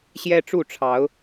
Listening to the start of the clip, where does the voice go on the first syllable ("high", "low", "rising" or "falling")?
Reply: high